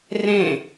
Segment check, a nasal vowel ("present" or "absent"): present